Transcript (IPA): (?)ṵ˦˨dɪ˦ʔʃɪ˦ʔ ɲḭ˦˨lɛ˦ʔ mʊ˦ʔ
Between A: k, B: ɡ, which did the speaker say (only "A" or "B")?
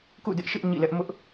A